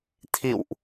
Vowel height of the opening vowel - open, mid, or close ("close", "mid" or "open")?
close